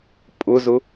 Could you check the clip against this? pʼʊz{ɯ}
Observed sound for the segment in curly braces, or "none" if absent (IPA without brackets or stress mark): ʊ